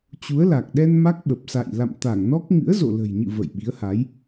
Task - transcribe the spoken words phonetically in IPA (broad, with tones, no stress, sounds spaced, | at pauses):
t͡ɕ u˨˦ ə̯ l a˨˩ k̚ ɗ ɛ˧ n m a˦˥ k̚ ɓ ə˨˩ p̚ s a̰˧˨ j l a̰˧˨ m t̪ a˧˩ ŋ n ɔ˦˥ k̚ ŋ ɨ̰˧˥ ə̯ z o̰˧˨ l ə̤˨˩ j ɲ ɨ̰˧˨ v ə̰˧˨ j ɓ i˨˦ ə̯ h a˨˦ j